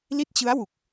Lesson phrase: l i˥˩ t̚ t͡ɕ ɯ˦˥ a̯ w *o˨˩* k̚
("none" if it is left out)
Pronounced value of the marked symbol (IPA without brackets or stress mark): u˨˩